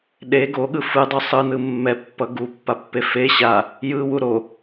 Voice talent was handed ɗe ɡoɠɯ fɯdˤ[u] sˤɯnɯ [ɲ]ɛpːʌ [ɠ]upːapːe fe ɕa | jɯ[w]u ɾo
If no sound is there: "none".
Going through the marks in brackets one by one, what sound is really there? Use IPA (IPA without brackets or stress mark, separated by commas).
u, mː, ɡ, w